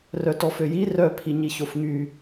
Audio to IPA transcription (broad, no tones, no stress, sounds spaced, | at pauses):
r œ t ɔ f ø j i r œ pʰ i ɲ i ç o f ŋ y